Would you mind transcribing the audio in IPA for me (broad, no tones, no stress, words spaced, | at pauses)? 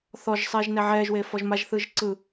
θɔʒsˤeːʒ nɛʕɛːʒweː fɔʒmaʒθɯːʒ ǀɯ